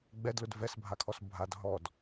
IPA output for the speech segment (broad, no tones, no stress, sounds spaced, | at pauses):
ɡ͡b ɛ d l ʊ d v ɛ s bʱ a kʰ ɔ s bʱ a d ɦ ɔ d